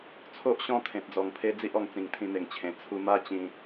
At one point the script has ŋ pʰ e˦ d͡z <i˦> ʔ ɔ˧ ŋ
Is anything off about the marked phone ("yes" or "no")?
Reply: no